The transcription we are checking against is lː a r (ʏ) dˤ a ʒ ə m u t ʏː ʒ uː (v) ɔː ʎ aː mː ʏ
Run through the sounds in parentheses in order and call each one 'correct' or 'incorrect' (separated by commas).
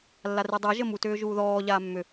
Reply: incorrect, incorrect